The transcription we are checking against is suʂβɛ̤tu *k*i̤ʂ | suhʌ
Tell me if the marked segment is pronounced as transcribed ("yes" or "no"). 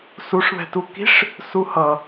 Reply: yes